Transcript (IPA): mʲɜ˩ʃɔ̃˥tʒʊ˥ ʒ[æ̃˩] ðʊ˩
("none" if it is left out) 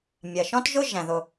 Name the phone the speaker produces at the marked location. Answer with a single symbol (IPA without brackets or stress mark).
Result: æ̃˩